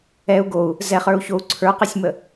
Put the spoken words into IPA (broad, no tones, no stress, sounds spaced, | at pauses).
ɛ u̯ ɡ o u̯ | z ɛ χ ə˞ u̯ ç o u̯ ǀʰ ə˞ q ɛ sʲ m ə